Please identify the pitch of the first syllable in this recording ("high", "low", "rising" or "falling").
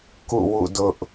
falling